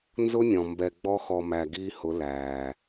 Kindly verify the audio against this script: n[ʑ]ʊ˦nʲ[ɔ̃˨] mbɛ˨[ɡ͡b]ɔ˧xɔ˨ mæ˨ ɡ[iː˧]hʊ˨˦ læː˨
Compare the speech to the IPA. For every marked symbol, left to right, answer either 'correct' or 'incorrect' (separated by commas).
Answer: incorrect, correct, correct, correct